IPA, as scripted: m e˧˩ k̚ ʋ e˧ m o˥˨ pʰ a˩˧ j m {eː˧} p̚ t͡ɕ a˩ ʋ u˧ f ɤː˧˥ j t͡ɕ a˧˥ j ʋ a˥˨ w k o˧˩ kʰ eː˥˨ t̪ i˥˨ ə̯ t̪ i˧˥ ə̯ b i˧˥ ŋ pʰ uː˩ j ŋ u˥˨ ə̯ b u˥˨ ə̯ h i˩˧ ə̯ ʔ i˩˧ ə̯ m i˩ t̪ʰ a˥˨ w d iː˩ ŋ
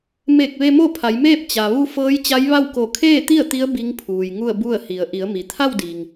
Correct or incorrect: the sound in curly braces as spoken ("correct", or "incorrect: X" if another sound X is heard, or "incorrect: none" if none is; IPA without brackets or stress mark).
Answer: incorrect: eː˥˨